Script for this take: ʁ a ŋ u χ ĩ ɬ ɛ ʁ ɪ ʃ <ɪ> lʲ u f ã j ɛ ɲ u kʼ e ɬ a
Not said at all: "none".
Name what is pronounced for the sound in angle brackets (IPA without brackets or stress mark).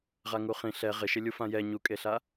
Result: ɪ